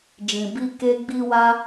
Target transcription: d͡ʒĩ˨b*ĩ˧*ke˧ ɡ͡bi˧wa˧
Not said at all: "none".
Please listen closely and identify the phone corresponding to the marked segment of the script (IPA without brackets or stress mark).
i˧